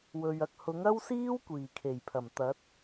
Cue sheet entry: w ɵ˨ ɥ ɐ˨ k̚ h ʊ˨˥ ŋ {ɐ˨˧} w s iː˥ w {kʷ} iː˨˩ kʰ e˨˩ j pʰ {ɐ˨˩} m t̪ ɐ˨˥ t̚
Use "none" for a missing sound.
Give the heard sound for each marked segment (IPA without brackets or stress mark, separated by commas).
ɐ˥, kʷ, ɐ˨˩